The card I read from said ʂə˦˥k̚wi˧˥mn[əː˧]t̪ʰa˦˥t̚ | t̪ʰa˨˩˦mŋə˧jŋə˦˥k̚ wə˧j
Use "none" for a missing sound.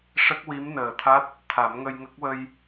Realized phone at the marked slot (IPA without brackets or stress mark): əː˨˩